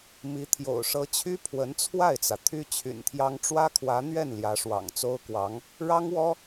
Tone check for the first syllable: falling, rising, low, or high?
rising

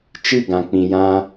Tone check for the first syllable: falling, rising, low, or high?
falling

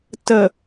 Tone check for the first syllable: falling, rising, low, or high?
low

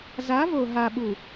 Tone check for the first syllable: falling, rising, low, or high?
rising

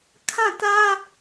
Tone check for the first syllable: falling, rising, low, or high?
falling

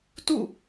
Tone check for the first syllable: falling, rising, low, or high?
falling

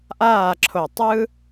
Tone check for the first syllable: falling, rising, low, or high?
falling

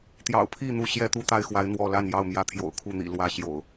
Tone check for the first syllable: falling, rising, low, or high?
low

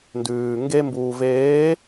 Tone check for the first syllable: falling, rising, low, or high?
low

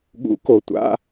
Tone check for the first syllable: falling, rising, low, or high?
rising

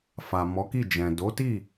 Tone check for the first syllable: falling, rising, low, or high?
low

